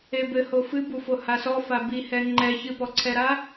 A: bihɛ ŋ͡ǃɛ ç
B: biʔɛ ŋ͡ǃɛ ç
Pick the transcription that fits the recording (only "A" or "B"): A